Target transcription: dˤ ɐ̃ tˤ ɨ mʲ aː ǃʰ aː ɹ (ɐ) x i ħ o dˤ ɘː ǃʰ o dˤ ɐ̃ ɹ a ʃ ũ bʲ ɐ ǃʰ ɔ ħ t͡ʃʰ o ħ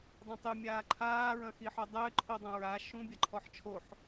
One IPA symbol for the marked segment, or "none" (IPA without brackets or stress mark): ɐ̃